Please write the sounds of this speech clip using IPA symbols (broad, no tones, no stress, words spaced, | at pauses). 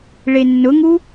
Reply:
ɭenːʊŋu